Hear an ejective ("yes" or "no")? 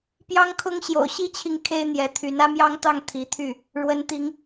no